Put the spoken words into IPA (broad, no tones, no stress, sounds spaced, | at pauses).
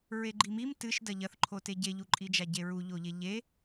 ɹ e ɡ͡ǃ i m i m t ɨ ʃ d ɐ ʎ ɐ θ ǃʰ o t e ɟ e ʎ u ǃʼ i d͡ʒ a ɟ e ɹ u ʎ o ʎ e ʎ e